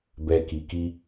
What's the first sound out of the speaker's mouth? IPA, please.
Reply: b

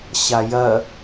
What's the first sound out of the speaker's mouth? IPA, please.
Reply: ɕ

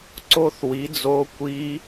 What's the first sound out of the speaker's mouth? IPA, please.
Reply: ǀ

